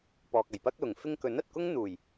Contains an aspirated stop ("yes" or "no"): no